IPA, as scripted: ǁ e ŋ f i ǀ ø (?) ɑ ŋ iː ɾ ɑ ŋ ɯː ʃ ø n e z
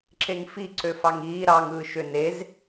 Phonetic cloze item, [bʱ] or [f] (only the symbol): f